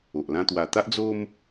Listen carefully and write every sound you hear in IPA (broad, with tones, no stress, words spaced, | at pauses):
o˨ʔ lã˧t̪wa˨˩t̪a˦ʔ d͡zo˦m